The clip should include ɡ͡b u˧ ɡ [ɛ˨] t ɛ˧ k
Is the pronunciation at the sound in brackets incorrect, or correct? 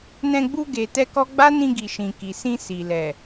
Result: incorrect